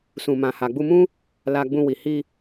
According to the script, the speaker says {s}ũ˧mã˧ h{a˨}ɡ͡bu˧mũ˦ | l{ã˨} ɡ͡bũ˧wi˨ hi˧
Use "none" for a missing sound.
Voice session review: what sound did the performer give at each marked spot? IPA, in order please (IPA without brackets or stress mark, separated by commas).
s, a˨, a˨